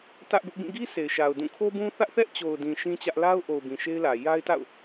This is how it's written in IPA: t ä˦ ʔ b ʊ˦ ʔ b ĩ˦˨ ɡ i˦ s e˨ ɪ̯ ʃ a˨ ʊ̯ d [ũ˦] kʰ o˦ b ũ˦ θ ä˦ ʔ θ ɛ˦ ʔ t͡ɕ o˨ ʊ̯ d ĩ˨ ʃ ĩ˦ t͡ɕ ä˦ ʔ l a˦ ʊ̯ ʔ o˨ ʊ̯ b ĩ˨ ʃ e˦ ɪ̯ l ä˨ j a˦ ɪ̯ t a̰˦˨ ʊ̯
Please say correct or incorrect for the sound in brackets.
incorrect